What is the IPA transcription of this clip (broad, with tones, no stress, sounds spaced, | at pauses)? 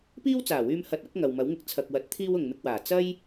p iː˥ w t͡s aː˨˩ w yː˧ m h ɐ˨˥ t̚ ɐ˨˥ k̚ ŋ ɐ˨ w m ɐ˨˥ w ŋ ɪ˧ k̚ t͡sʰ ɐ˨ k̚ w ɐ˨˥ t̚ t̪ʰ iː˥ w ʊ˨ ŋ m ɪ˧ k̚ w aː˨˩ t͡s ɐ˥ j